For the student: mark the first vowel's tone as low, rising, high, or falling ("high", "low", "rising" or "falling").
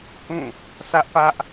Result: falling